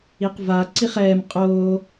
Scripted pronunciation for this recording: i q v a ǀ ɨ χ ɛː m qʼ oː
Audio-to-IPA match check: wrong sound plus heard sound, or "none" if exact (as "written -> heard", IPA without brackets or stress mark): ɨ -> i